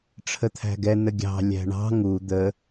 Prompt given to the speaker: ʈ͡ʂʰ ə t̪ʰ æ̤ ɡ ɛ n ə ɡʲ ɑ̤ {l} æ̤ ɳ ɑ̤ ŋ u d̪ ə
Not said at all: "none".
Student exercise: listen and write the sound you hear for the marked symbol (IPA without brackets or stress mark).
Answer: lʲ